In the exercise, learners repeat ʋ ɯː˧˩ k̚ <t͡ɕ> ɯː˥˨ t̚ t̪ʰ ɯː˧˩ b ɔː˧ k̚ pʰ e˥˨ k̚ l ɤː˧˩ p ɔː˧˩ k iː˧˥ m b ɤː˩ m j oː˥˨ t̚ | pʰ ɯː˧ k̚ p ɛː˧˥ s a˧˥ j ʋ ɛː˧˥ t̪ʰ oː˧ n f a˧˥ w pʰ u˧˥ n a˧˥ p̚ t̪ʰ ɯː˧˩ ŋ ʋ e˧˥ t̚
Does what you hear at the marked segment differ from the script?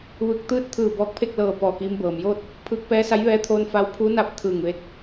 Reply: yes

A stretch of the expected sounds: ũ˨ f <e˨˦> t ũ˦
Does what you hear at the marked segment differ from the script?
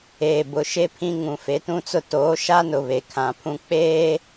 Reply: no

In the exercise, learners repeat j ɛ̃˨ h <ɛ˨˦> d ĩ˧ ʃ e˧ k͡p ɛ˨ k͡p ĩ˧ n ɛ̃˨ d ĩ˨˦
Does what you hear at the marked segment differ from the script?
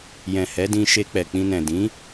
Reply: no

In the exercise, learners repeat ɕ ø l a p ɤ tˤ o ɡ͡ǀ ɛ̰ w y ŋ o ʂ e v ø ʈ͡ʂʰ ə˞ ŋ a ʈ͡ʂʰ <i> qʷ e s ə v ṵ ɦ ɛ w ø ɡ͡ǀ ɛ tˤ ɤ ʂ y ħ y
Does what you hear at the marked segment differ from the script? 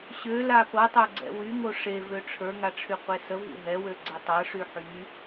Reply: yes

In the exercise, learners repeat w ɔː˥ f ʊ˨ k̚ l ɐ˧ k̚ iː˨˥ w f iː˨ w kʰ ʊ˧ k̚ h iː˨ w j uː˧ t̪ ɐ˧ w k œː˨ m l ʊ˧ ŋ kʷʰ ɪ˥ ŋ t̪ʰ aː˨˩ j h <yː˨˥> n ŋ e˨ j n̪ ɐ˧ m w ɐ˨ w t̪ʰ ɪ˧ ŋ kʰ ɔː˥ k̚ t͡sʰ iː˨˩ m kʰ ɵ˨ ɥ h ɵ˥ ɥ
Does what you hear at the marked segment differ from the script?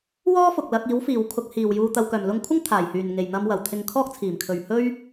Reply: yes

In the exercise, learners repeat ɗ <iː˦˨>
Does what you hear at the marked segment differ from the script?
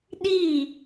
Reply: no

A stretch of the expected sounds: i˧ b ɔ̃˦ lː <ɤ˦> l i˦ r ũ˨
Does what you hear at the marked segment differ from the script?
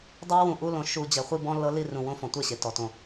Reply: no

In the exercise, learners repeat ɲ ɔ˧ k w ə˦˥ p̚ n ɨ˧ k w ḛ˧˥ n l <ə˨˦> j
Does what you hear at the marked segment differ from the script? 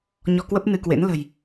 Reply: yes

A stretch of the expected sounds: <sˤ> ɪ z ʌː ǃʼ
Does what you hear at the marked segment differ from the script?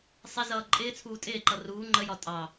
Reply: no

